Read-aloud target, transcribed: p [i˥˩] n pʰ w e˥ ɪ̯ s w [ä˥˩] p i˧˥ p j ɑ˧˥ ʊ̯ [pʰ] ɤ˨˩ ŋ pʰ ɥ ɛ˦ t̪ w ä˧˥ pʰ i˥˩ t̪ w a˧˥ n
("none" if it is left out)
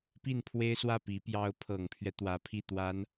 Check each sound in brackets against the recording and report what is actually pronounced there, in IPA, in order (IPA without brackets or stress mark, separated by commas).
i˥˩, ä˥˩, pʰ